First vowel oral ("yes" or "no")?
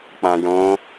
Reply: no